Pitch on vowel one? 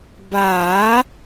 rising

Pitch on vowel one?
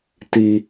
low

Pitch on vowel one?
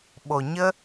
low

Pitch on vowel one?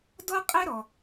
high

